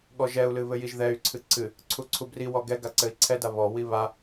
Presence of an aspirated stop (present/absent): present